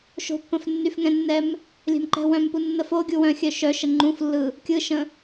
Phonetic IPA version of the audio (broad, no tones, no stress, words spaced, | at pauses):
ʃo̤pːə̃f nːyfŋɛ̃nːɛm | lʲɛ̤mǃɛ̤wœ̃mpu nːəf o ɡʲuwœ̃xʲœ ʃœʃə ŋ͡ǃũflːɯ | kʲɯʃə̃